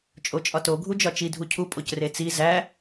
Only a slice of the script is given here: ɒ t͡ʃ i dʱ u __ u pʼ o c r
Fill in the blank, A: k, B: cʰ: B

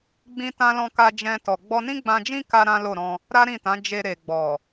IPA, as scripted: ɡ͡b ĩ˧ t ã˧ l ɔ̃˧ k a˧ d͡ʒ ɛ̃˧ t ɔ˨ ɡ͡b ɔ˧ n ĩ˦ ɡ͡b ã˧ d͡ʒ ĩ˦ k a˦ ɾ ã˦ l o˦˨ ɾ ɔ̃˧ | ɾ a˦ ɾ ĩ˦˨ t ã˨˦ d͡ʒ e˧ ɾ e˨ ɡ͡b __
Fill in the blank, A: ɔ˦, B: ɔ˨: B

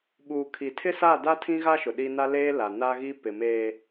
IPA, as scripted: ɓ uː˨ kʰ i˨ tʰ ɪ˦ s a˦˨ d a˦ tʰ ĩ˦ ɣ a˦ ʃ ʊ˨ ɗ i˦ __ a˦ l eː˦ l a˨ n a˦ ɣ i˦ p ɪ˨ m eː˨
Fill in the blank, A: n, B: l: A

